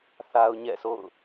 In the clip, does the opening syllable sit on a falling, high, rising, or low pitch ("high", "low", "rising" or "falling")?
high